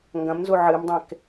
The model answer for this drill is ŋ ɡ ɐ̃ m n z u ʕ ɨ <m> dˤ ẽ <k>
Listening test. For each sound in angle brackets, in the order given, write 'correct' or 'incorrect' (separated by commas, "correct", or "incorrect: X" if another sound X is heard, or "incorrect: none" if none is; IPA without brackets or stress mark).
correct, correct